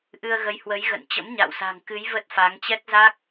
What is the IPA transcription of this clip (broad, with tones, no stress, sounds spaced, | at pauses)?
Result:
ʔ ɨ˧ ə̯ ɣ ə˨˦ j h w ə˨˦ j ɣ ə̰˧˨ n t͡ɕ ə̰˧˥ m ɲ a̰˧˨ w s a̤˨˩ ŋ k ɨ˨˦ j v ə˦˥ t̚ f a˨˦ ŋ t͡ɕ ɛ˦˥ k̚ z a˦˥ k̚